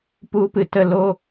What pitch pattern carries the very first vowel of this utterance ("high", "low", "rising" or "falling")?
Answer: high